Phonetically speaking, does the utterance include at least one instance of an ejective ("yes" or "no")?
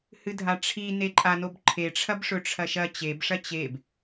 yes